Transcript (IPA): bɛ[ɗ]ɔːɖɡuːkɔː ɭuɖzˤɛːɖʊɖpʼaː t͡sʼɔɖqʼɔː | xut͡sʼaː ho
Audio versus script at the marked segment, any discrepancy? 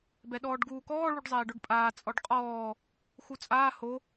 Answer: no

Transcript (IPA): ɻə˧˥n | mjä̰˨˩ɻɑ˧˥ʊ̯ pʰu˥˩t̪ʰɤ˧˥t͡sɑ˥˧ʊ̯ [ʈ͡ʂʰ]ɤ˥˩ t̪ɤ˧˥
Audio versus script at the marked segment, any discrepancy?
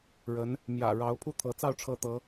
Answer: no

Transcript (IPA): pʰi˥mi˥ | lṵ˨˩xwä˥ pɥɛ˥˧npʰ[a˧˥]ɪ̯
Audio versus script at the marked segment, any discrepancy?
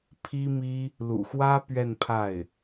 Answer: yes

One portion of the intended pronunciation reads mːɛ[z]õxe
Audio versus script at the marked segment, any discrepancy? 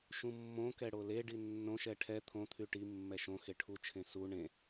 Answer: yes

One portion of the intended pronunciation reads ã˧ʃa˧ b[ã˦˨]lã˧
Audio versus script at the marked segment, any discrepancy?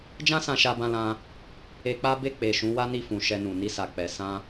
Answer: yes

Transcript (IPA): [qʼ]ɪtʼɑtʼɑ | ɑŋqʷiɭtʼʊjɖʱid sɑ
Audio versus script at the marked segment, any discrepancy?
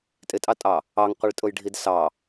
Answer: yes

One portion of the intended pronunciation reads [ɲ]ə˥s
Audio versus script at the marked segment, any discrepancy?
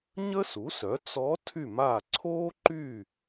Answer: no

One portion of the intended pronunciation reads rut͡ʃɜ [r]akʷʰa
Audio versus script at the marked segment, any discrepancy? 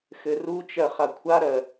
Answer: yes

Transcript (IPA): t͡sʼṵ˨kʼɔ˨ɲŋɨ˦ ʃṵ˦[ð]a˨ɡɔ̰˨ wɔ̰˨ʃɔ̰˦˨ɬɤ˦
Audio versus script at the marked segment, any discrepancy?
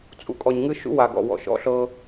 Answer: yes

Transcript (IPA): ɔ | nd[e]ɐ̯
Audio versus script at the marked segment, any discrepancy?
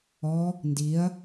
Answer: yes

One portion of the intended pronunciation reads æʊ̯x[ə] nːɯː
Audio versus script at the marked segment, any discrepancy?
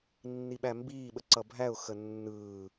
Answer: no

